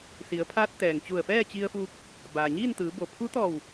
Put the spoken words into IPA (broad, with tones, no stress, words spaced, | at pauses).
si˩˧ə̯pʰaː˧˥t̚ t̪ɛː˩ŋt͡ɕu˧˩ə̯ fɛː˥˨t͡ɕi˧ə̯fuː˧k̚ | baː˩ɲiː˥˨nt̪ɯː˩˧ bo˩pʰu˧˥t̪ɔː˧˩w